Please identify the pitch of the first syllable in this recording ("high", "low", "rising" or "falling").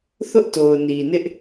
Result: high